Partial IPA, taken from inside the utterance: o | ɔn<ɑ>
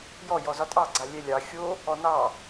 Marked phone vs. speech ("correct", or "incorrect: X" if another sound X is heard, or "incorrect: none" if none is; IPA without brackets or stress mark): correct